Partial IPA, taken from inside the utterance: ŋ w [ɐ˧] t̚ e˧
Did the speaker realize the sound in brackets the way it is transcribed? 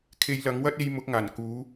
no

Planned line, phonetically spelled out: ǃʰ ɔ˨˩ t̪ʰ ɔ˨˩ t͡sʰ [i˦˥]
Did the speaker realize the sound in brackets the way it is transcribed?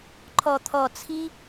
yes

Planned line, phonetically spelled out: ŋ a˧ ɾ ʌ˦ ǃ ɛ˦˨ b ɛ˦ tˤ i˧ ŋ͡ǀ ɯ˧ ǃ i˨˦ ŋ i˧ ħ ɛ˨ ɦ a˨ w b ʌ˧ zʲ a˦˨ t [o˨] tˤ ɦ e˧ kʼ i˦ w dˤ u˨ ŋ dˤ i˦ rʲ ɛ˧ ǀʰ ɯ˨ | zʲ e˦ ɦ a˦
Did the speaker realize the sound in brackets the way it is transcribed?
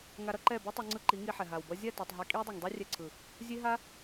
yes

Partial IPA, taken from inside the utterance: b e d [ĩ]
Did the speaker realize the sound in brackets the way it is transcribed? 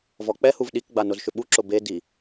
no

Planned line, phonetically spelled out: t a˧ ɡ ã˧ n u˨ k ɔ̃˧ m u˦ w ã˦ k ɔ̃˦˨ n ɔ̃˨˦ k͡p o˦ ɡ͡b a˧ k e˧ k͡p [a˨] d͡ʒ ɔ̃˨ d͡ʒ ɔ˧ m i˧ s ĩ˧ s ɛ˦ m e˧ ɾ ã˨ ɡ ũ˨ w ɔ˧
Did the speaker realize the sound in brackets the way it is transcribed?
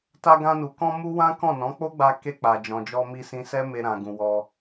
yes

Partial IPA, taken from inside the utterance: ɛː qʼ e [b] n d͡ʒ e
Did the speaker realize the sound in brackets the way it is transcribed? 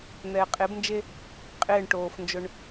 yes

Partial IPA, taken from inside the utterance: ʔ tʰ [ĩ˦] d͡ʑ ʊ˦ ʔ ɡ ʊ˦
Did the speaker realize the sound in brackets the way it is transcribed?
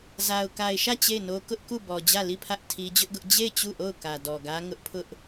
no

